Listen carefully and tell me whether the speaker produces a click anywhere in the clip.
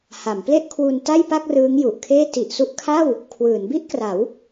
no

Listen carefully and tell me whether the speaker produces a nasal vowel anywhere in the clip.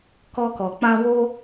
yes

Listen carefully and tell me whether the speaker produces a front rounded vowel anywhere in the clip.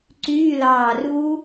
yes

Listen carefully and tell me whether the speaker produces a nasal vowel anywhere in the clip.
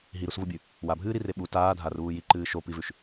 no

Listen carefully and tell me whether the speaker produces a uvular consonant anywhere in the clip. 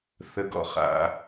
yes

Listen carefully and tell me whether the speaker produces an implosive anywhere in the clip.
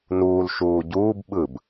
yes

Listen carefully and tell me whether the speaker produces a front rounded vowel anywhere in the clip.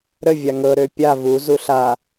yes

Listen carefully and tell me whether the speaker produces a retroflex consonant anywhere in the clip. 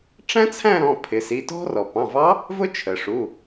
yes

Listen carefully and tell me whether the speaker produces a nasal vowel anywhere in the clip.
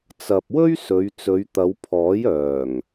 no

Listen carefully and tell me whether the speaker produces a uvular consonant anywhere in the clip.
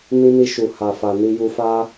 no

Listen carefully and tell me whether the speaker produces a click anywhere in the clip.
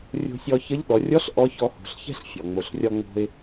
no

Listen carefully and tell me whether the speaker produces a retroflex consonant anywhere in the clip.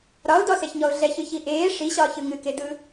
yes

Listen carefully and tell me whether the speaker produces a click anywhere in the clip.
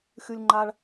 yes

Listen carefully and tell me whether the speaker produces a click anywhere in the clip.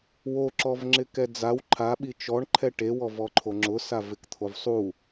yes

